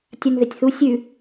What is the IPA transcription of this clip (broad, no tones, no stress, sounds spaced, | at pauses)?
tʲ a n ð ɪ tʲ θ u sʲ ʉ